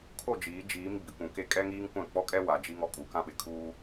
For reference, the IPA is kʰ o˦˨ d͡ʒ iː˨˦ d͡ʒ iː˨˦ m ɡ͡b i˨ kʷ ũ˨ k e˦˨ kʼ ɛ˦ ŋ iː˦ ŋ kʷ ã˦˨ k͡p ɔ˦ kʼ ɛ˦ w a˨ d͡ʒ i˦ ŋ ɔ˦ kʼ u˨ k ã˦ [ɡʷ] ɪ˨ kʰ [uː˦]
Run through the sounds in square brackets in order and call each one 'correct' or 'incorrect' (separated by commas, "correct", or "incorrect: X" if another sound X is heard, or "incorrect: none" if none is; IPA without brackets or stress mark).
incorrect: ɓ, correct